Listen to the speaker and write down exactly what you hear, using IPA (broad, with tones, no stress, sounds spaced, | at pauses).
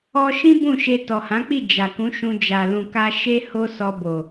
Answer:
ɔ˧ ʃ ĩ˦ b ũ˦˨ ʃ e˧ t ɔ˨ h ã˨˦ k͡p i˦˨ d͡ʒ a˨ k ũ˨˦ ʃ ũ˧ d͡ʒ a˨ l ũ˨ k a˧ ʃ e˦ h o˦ s ɔ˧ b o˨